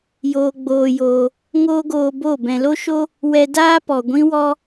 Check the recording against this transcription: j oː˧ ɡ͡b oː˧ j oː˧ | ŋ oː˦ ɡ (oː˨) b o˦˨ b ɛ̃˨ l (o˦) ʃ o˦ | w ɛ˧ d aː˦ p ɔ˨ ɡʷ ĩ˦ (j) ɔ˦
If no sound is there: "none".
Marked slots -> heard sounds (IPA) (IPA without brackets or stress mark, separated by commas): oː˧, o˦, w